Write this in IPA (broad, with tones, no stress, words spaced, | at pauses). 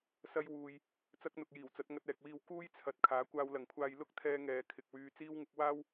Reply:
sɐ˧jwuː˨j | t͡sɐ˥k̚n̪ʊ˨k̚jiː˨˩wt͡sɐ˨˥t̚ ŋɐ˧t̚ɛː˨k̚wiː˧w kuː˥jt͡sʰɐ˨t̚ kʰaː˨˥kʷaː˧wlɐ˨ŋkʷʰaː˧j lʊ˥k̚ t̪ʰɛː˧ŋɛː˨ kʰɪ˨k̚wyː˧ t͡siː˥wŋɪ˥k̚ waː˥w